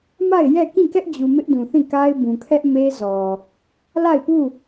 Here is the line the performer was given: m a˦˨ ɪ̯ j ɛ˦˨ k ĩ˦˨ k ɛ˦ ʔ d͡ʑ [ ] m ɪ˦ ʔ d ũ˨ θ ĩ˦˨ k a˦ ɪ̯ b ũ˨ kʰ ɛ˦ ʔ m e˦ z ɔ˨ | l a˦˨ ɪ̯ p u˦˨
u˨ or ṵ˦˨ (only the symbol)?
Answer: u˨